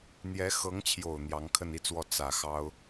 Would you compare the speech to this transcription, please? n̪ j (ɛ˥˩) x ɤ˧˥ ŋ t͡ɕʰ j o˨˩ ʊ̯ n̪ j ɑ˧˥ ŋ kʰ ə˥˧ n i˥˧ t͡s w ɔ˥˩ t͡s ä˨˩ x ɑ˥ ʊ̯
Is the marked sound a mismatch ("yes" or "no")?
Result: yes